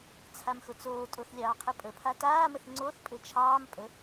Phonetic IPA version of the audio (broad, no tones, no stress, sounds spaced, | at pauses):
t͡sʰ a m x ʊ t͡s oː tʼ o θ lʲ ɑː qʰ ɘ pʼ ə pʰ a t aː m ə θ ŋ͡ǀ o θ pʼ ɘ t͡ʃʰ ɑː m pʼ ə